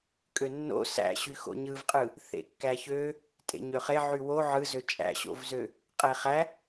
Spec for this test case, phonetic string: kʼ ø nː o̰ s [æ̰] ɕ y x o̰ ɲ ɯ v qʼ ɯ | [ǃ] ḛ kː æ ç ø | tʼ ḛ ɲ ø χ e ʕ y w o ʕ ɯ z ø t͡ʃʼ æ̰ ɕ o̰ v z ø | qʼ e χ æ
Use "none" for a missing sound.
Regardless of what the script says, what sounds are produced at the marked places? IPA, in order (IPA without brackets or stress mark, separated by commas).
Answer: æ̰, θ